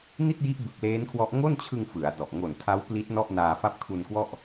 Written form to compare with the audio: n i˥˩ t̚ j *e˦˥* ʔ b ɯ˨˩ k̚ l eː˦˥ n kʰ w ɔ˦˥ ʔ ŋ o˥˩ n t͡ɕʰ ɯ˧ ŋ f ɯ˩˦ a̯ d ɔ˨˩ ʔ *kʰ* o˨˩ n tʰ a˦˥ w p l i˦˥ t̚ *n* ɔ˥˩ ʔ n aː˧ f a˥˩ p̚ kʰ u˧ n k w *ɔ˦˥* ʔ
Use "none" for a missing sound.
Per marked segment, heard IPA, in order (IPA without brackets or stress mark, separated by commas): i˦˥, ŋ, n, ɔ˥˩